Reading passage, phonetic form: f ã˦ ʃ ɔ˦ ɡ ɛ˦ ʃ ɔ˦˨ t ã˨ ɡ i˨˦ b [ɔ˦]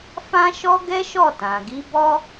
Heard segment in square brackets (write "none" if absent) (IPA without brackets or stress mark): ɔ˦